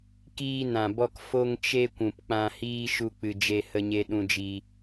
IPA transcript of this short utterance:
k iː˧ n ã˨ b ɔ˧ k f o˧ ŋ t͡ʃ e˧ kʷ ũ˨ p k͡p ã˧ h iː˦ ʃ u˦ k͡p ɨ˧ d͡ʒ e˦ h ə˦ ɲ e˦ ɗ ũ˦ d͡ʒ i˦

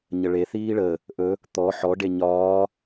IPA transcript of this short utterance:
ɲ ə ɭ e θ iː ɭ ə | ʔ ɵ | t̪ ɔ ħ ɔ ɖ e ɲ ɒː

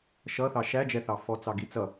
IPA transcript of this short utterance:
ʃ ʌ θ ɑ ʃ æ d͡ʒ ɛ θ ɑ f ɔ t͡s ɑ ɡ i t͡s ʌ

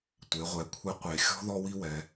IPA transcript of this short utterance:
tʷ e˩˧ ʁʷ ɛ˩˧ kʷʰ e˧˥ qʷ e˩ xʲ ɔ̤˥ ð ɔ˥ w i˥ w ɛ˩˧

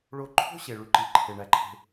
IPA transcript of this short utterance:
ɭ o˧ ǃʰ o̤˦ ɕ e˨ ɭ y˧ ǃ i˨ ǃʰ e˨ ɳ æ˨ ǃʰ e̤˧

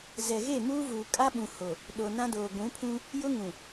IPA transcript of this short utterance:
z ɛ˨ ɣ e˦˨ m uː˦ v uː˨ kʼ a˦ ɓ ũ˨ h o˨ | ɗ o˨ n ã˦ d oː˨ ɡʷ ũ˨˦ pʰ ũ˦ | j ʊ˦ ŋ ũ˨

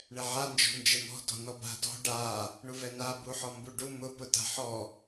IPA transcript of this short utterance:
ɳ ɛ ʕ a n d͡ʒ ɔ̤ n d͡ʒ ɛ m ɔ̤ d ɔ̤ n ɔ b a̤ d ɔ̤ ɖ a | ɳ u v ɛ n a b u ħ ɔ m b u ɖ u m ʊ p ʊ t a̤ ħ ɔ

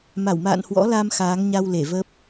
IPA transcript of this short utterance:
m a˧˩ w m a̰ː˧˨ n h w ɔ̰˧˥ l a˧ m x aː˨˦ ŋ ɲ a˧ w l e˧˩ v ə˦˥ p̚

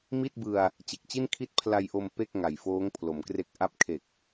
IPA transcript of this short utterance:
m i˥˩ t̚ b ɯ˧ a̯ | t͡ɕ e˨˩ k̚ t͡ɕ i˥˩ n kʰ i˦˥ t̚ pʰ l a˧ j ʔ o˧ m p e˥˩ k̚ ŋ a˨˩ j f oː˦˥ ŋ pʰ l o˩˦ m k r e˦˥ k̚ ʔ a˦˥ p̚ kʰ e˨˩ k̚

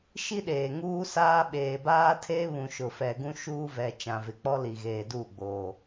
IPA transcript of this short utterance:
ʃ i˦ ɗ eː˨ ŋ uː˦ s aː˦ ɓ eː˨ b aː˦ tʰ eː˦ β ũ˨ ʃ ʊ˨ f ɛ˨ ɡ ũ˦ ʃ uː˦ v ɛ˨ t͡ʃ ã˨ v ɪ˨ k͡p ɔ˦ l i˨ ɣ eː˨ d u˦˨ ɡ͡b oː˨

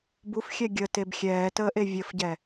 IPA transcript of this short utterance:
b u f xʲ ɛ ɡʲ ə t e b xʲ ɛː t əː ʔ e vʲ ə f ɟ ɛ

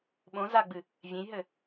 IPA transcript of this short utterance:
ɓ õ z a ɡ͡b ɨ | vʲ ẽ j ɦ ɘ

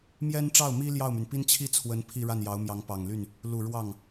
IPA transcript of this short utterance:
m j ɛ˥ n ʈ͡ʂ ɑ˥˩ ʊ̯ m i˥ l j ɑ˥˩ ʊ̯ m y˩ n p i˥ n t͡ɕʰ i˥˩ t͡sʰ w ə˧˥ n pʰ i˥˧ ɻ a˥˩ n j ɑ˧˥ ʊ̯ m j ɑ˧˥ ŋ p ɑ˨˩ ŋ l y˥˩ n | l u˨˩ ɻ w ɑ˥˩ ŋ

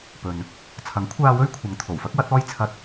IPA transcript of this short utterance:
p ɵ˨ n | t͡sʰ ɐ˨˥ ŋ kʷʰ aː˧ w ɵ˥ ɥ kʷʰ ɐ˨˧ ŋ t̪ʰ o˨˩ w f ɐ˥ k̚ w ɐ˨˥ t̚ ɔː˥ j t͡sʰ ɐ˥ t̚

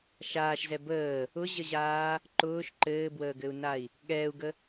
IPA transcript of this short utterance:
ʃ aː ʃ z ɛ b əː | ʊ ʑ ə ʑ aː | ǃ ʊː ʃ ǃ ɘː b w əː ɡ ɘ u̯ n a i̯ | ɠ ɛː u̯ ɡ ə

